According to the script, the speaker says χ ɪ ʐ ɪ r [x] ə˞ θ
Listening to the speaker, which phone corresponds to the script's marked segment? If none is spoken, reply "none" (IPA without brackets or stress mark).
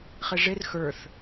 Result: x